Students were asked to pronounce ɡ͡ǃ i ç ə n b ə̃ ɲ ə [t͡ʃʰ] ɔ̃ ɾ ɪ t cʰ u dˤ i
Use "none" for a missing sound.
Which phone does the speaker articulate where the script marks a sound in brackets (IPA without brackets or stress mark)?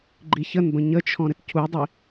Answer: t͡ʃʰ